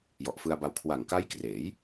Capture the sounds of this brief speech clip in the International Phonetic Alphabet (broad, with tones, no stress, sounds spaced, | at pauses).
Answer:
j ɔ˨˩ ʔ f ɯ˧ a̯ b a˧ w kʰ w a˨˩ ŋ k a˦˥ j k r eː˩˦ j